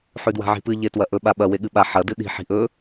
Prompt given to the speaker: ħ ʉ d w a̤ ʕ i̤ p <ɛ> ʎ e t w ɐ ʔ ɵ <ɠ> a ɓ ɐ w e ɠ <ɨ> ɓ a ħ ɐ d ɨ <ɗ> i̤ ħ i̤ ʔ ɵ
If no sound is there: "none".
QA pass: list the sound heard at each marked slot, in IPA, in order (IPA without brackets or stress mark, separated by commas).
ɨ, ɓ, ɨ, ɗ